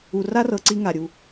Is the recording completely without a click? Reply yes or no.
no